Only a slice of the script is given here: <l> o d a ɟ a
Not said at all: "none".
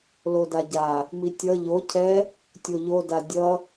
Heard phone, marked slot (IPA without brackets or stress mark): l